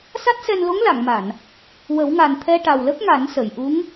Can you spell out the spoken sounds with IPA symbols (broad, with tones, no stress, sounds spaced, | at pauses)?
s a˦˥ t̚ s ɛ˧ n l o˧˥ ŋ l a˨˩˨ ŋ m a˨˩˨ n | w ə˨˩˦ w ŋ a˨˩ n t̪ʰ ɛ˧ ʈ a˨˩ w l ə˦˥ k̚ ŋ a˨˩˦ n s ə˨˩˨ j ʔ u˧˥ ŋ